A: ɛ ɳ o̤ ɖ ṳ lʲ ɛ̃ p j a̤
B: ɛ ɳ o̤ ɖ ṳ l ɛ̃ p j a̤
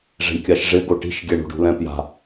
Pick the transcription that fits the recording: B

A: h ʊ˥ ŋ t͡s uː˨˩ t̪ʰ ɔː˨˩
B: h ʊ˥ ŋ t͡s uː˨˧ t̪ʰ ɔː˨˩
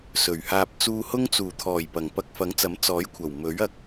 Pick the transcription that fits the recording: A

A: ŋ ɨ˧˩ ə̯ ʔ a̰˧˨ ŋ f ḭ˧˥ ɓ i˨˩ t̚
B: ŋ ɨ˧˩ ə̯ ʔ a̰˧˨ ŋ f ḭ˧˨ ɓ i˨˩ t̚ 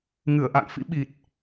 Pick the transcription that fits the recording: A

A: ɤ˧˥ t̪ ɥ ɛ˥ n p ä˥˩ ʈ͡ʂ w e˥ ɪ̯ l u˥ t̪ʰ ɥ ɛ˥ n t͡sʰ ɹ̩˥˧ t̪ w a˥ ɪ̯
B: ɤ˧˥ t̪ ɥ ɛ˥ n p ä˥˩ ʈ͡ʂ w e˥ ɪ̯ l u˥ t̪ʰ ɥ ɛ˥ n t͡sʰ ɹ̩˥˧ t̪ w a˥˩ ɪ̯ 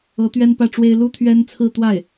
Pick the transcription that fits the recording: B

